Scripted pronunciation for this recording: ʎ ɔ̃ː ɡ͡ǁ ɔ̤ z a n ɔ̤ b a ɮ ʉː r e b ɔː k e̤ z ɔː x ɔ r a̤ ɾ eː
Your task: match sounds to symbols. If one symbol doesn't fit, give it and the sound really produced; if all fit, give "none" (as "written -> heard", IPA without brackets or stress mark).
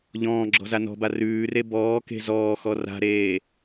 ɮ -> r